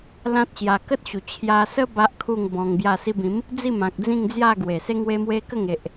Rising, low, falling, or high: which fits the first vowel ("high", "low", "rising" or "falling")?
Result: high